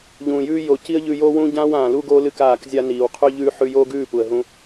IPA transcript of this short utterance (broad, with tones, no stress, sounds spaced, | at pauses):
ʎ ũː˨ j ʉː˦ j o˨ c i˦ ə̯ ʎ ʉ˧ j oː˦ w ũː˦ ɟ ãː˦ w ãː˨ l u˦ ɡ oː˦ l ɨ˦ k aː˦˨ k zʲ a˦ n iː˨ w qʰ ʉ˦ ʎ ʉː˦ ħ ʉ˧ j oː˦ ɡ ʉː˦˨ p u˨ ə̯ ɦ ũ˦